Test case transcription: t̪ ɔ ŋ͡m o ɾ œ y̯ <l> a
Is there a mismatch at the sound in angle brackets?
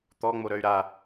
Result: yes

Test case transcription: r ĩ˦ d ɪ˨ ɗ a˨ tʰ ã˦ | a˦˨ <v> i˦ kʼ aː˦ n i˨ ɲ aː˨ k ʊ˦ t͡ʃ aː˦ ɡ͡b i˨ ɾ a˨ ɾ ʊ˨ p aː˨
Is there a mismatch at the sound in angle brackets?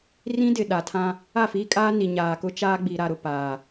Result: yes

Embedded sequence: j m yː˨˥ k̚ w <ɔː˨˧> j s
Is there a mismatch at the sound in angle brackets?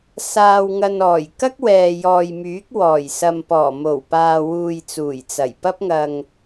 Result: yes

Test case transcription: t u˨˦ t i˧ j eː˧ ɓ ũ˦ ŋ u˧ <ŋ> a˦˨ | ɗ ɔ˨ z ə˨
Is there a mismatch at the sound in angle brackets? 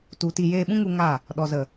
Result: no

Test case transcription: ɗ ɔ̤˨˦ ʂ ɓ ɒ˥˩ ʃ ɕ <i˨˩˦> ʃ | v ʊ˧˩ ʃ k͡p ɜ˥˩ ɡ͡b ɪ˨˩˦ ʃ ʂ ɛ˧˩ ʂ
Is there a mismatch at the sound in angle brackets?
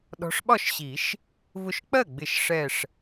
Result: no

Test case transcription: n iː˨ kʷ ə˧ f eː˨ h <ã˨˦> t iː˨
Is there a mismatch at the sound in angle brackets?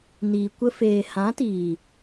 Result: no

